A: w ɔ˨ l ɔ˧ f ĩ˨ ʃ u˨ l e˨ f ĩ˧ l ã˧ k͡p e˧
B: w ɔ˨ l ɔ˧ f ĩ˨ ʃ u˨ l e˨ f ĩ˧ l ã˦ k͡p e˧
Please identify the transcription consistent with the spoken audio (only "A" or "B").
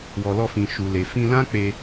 B